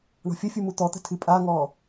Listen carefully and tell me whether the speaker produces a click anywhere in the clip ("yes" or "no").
no